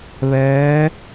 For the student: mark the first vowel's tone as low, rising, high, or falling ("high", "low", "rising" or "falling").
rising